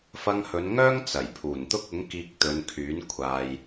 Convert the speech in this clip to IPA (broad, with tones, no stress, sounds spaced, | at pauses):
f ɐ˧ ŋ h ɵ˨˧ n ŋ œː˥ ŋ t͡s ɐ˨˩ j pʰ uː˨˩ n t̪ ʊ˥ k̚ ʊ˨˥ ŋ k iː˧ k̚ t̪ ɵ˨˧ n kʰ yː˨˥ n kʷʰ aː˧ j